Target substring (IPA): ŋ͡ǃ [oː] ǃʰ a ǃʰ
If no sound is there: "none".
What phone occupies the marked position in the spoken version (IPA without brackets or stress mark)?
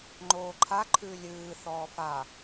oː